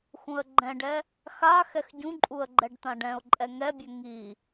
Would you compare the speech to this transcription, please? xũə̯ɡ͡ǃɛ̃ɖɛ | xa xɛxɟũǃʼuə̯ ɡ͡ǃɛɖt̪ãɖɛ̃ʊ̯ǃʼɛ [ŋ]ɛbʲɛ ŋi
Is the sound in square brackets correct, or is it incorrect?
correct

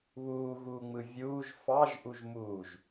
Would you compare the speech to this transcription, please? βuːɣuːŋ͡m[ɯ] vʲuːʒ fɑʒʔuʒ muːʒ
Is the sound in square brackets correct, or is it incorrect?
correct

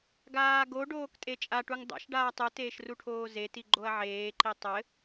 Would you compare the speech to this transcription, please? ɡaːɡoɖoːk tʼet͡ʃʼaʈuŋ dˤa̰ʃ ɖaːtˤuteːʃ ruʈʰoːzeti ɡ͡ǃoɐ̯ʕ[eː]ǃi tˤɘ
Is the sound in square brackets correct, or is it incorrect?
correct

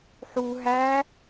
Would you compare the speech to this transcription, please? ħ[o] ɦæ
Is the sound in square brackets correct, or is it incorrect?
incorrect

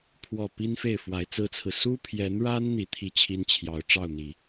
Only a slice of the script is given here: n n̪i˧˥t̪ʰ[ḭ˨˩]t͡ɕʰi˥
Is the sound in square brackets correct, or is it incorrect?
incorrect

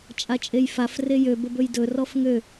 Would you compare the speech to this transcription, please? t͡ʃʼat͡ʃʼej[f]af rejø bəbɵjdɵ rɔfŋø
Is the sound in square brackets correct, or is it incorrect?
correct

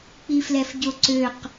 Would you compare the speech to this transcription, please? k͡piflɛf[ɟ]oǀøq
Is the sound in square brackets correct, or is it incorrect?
correct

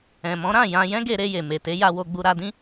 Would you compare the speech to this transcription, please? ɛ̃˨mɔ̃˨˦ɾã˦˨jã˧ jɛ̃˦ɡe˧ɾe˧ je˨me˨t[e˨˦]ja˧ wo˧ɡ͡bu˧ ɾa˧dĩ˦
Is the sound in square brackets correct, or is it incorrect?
correct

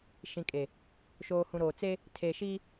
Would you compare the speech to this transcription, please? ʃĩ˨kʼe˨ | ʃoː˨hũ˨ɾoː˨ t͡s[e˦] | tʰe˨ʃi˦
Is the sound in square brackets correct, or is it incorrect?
correct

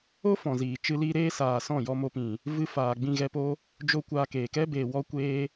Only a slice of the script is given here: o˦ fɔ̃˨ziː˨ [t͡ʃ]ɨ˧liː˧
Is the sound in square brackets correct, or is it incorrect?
correct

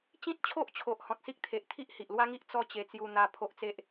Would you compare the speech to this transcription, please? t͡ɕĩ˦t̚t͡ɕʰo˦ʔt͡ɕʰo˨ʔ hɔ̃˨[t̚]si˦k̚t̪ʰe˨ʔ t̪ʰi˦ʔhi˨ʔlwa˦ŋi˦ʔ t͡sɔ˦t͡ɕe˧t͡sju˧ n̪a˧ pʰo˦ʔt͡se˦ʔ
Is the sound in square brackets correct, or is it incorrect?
correct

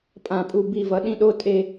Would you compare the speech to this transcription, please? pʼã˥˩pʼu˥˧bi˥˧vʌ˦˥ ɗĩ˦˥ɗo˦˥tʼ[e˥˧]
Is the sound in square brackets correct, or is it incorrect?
correct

